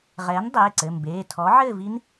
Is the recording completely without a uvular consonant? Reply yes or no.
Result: no